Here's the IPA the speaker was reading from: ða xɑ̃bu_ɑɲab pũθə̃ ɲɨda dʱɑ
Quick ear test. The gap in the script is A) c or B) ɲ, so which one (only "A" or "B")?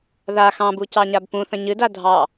A